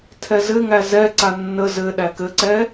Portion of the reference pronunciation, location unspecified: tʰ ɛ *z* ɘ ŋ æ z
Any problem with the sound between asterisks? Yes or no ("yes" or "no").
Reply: no